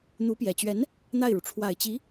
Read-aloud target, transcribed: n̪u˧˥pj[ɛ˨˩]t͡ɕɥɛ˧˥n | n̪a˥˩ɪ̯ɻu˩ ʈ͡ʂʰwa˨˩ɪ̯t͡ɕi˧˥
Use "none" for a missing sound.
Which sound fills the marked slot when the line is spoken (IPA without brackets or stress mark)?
ɛ˨˩